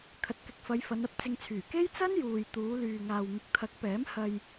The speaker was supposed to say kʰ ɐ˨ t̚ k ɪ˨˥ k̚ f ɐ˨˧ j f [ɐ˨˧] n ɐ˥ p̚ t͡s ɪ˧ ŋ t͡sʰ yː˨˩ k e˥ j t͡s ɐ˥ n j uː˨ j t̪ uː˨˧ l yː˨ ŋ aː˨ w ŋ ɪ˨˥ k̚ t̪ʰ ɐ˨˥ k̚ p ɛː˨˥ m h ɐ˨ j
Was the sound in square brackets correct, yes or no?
yes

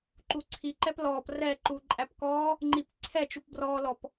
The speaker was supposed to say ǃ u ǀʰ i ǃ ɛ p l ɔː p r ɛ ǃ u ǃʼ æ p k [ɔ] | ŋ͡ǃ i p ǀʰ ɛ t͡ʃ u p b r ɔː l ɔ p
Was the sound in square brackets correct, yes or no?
no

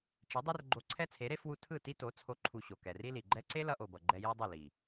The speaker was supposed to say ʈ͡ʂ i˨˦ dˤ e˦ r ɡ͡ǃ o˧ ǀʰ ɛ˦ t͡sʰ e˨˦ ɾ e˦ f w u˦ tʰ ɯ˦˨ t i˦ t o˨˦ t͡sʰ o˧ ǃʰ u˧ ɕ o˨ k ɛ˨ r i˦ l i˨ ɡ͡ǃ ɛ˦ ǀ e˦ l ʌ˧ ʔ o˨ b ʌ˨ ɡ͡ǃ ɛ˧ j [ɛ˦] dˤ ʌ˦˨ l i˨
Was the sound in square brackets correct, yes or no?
yes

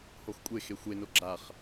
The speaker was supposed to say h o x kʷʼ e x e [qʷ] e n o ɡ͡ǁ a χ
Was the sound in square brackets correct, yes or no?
no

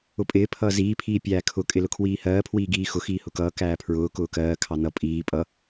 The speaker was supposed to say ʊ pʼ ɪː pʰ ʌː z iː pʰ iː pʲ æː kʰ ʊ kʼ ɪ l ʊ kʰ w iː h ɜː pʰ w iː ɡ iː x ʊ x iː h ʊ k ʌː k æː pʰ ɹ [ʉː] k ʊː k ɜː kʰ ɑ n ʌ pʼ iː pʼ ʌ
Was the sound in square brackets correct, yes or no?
no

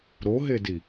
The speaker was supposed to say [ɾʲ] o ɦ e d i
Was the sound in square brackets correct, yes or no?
no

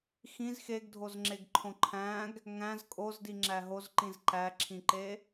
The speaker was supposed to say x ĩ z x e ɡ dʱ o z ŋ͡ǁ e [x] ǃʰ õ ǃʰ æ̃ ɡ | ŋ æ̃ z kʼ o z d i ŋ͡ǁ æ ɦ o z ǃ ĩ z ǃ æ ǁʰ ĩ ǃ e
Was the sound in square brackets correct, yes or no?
no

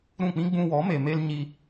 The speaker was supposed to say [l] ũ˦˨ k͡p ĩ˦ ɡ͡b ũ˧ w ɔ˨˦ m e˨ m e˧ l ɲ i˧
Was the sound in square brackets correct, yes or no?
no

